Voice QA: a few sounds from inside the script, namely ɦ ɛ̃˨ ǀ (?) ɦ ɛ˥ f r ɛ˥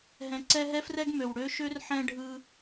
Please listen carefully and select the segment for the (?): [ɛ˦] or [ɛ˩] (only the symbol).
ɛ˦